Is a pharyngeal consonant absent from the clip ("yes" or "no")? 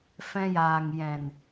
yes